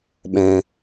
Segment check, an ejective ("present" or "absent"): absent